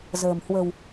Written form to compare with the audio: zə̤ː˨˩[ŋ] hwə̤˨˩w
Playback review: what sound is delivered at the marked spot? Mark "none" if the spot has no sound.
m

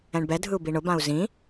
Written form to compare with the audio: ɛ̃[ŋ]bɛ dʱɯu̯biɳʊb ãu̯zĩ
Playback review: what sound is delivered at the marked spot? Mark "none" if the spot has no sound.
ɳ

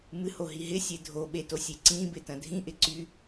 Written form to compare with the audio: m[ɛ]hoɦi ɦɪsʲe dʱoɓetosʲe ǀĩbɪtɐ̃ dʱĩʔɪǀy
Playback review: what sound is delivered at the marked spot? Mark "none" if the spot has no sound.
ɨ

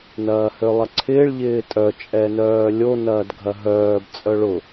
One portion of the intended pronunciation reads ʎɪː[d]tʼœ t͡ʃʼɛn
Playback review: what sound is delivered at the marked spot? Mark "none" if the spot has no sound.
none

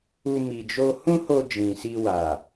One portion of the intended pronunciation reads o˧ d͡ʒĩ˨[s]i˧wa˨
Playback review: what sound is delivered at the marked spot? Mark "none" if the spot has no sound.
s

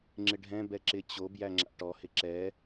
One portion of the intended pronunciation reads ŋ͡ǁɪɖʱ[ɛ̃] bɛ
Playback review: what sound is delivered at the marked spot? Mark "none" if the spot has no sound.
ɛ̃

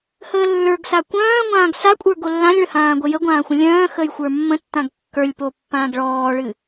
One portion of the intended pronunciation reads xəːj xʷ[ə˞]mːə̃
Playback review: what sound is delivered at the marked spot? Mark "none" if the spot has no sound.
ə˞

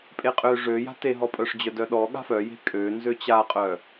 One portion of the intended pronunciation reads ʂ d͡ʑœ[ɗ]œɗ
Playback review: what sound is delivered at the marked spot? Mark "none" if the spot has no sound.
d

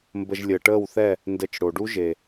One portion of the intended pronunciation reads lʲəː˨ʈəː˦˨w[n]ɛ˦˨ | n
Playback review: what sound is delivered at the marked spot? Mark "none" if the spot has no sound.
θ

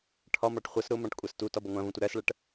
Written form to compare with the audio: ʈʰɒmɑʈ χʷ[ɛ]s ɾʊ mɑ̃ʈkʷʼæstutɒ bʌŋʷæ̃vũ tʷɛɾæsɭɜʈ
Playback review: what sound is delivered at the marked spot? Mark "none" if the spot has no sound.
ɜ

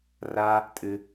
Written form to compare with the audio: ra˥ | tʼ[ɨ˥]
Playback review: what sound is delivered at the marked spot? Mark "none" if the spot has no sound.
ɨ˥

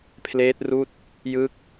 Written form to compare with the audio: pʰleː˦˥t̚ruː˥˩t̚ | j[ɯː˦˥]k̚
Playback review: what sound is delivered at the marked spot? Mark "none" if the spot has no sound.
ɯː˦˥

